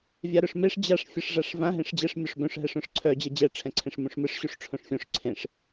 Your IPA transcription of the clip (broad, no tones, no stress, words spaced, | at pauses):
vʲaɾœʂmeʂ d͡ʑaʂ fʲɯʂʐaʂvã ɦẽʂd͡ʑɛʂ mʲoʂbœ̃ʂ ɦɛʂœ̃ʂǀʰœ d͡ʑɛd͡ʑɛ ʈ͡ʂʰɛ̃ǀʰẽʂmũʂmɯʂ ɕuʂʈ͡ʂʰõʂfʲõʂ ǀʰẽʂ